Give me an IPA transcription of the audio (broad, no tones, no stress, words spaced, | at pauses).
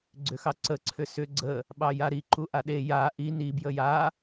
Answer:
ɡ͡ǀʏxɑǀə ǀʰʏsʏ ɡ͡ǀə | ɓɑjaɾi ǃuʔaɗe ja ʔi ni bjəja